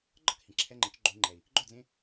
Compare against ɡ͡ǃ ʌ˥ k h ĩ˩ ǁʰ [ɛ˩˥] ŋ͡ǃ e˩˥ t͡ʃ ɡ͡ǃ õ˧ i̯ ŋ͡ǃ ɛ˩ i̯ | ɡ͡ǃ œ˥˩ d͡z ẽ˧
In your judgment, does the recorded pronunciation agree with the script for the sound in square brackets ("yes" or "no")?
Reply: no